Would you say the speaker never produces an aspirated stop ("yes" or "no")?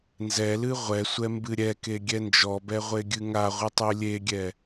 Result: yes